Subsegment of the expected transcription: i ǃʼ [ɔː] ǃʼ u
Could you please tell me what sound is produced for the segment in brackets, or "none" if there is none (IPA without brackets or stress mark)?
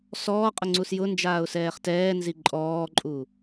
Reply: ɔː